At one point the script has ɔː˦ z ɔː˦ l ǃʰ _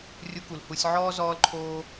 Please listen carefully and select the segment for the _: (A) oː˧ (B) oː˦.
B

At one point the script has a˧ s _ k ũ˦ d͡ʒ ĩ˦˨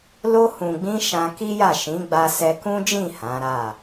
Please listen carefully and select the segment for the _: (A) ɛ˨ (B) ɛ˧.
B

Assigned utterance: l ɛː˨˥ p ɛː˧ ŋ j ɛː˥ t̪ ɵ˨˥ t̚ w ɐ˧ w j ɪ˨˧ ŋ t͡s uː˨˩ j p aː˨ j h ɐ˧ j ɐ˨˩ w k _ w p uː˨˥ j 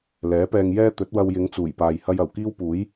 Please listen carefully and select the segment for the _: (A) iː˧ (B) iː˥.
B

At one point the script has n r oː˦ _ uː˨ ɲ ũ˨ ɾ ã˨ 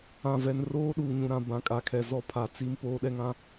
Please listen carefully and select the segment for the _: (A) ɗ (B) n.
A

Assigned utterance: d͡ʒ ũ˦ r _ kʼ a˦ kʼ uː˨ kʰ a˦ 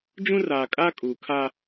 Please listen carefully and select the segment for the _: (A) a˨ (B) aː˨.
B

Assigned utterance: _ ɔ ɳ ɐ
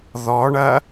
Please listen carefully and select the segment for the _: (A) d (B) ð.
B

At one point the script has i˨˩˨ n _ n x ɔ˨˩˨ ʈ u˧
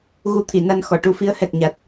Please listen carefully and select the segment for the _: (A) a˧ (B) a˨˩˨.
A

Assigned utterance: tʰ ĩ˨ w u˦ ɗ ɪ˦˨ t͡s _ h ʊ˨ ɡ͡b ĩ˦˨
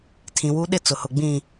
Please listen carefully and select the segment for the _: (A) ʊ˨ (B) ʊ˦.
A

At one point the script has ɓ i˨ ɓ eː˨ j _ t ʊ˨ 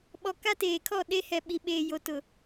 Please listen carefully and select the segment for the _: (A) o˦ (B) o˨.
B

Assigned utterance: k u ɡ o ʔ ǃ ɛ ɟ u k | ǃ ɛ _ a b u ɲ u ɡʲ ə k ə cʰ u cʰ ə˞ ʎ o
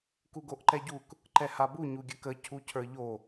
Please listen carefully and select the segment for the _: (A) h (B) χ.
A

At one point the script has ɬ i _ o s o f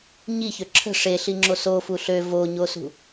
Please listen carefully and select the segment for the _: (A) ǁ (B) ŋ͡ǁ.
B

